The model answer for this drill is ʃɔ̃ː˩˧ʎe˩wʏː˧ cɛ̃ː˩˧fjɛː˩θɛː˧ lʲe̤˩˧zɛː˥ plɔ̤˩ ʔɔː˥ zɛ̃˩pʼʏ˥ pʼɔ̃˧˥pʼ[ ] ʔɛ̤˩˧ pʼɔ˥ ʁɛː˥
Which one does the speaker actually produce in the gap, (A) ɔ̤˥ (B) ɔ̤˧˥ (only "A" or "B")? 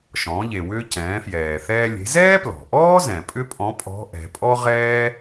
B